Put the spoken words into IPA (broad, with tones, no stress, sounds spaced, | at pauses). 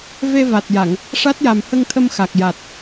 v e˧ v a˨˩ t̚ j a˨˩˨ ŋ | ʂ a˦˥ t̚ j a˨˩ m h ə˧ ŋ t̪ʰ ə˧ m x a˨˩ k̚ j a˨˩ t̚